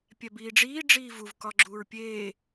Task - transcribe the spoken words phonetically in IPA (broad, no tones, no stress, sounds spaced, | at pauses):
pʲ æ b iː ɖ͡ʐ iː ɖ͡ʐ iː v u v k ɒ ɡ͡ǁ uː ɹ pʲ eː